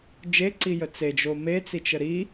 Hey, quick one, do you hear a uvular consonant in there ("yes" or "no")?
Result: no